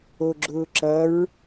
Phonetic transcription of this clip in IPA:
o ɡ͡ǁ ʊː ǁ ʌ ɹ

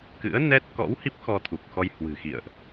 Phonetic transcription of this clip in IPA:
k ɨ̰˧˥ ə̯ n ɛ˦˥ t̚ k ɔ̰˧˥ w h i˦˥ p̚ x ɔ˧ t̪ʰ u˨˩ k̚ x ɔ˧ j h w ɨ̤˨˩ x ḭ˧˨ ə̯ ʔ

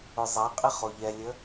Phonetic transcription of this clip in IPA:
ʊ zˤ a qʼ ɪ χ o ʎ ɛ lʲ ə

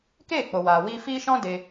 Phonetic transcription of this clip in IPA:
k eː˦˨ k͡p o˨ w aː˨ w iː˧ f iː˦ ʃ ɔ̃˦ d e˧

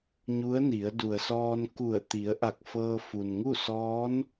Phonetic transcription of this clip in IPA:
ɲ u˧˥ ə̯ n i˩˧ ə̯ d u˩ ə̯ s ɔː˧ n k u˧˩ ə̯ t̪ i˩˧ ə̯ ʔ a˧˩ k̚ f ɤː˧ f u˩ n ŋ u˥˨ s ɔː˧˥ n

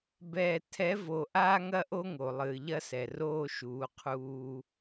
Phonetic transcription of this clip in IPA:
b ɛː˨ tʰ ɛ˨˦ v o˨ ʔ aː˦ ŋ ɐ˦ ʔ o˦ ŋ o˨ lˠ ɨː˨ ʎ ɐ˦ s ɛ˨ r oː˦ ʃ uː˨˦ qʰ uː˦

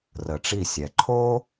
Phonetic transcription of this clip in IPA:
r ə˩ ʈ͡ʂ i˧˩ sʲ ɛ˩ ǃʰ oː˥

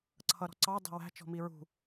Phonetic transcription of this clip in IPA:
ǀʰ ʌ ɾ ɔ̤ ǀ ɑ dˤ ɛ̤ w æ̤ t͡ʃ ɔ̤ m i ɹ ṳ

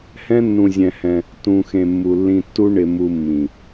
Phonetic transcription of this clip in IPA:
h ɛ̃˦ nː ũ˧ zʲ ɛ̃˧ h ɛ̃˧ | t ũ˧ x ẽ˧ mː u˨ lː ĩ˧ tː u˦ ɳ ɪ˧ m u˧ mː ĩ˨

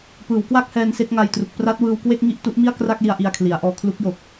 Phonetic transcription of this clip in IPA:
p ɯː˩˦ w k w a˥˩ k̚ h ɛː˧ n s e˥˩ k̚ ŋ a˧ j t r u˨˩ k̚ p r a˦˥ t̚ w ɯː˧ w k w e˥˩ k̚ ŋ i˥˩ ʔ t u˦˥ ʔ m i˥˩ a̯ k r a˥˩ k̚ l i˧ a̯ ʔ i˧ a̯ kʰ l i˩˦ a̯ ʔ ɔː˧ kʰ l u˦˥ k̚ j o˨˩ k̚

